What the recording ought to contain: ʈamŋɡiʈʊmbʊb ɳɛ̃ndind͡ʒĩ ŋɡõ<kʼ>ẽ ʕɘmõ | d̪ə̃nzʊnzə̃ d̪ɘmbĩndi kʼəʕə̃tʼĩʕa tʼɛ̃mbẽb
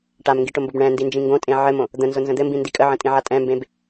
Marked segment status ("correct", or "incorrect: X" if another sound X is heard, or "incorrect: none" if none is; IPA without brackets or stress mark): incorrect: tʼ